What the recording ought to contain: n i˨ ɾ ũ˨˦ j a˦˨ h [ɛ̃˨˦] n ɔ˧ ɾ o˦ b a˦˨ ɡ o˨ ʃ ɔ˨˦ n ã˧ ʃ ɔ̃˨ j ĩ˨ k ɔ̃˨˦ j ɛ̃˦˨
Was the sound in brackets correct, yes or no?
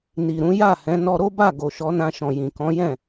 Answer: yes